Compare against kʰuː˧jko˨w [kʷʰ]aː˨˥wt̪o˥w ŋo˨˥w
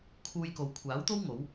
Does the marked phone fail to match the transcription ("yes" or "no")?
no